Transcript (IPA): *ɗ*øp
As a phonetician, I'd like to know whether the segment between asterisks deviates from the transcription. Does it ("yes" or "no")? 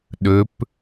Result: no